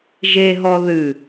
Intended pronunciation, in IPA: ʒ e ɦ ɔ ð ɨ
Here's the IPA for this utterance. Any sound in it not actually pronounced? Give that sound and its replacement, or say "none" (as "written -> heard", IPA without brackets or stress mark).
none